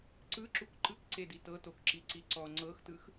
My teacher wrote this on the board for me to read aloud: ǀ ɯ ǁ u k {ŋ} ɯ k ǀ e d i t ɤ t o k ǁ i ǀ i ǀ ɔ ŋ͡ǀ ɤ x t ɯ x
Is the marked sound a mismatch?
yes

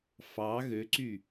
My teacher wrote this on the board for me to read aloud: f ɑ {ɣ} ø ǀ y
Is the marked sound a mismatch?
no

